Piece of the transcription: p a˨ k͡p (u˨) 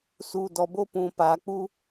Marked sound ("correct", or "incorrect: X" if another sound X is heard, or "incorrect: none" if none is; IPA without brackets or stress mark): incorrect: u˦